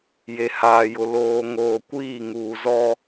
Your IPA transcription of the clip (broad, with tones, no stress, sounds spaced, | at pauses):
j e˨ h aː˨ j ʊ˨ l oː˨ ŋ oː˨ kʷ iː˦˨ ŋ uː˨ z ɔ˦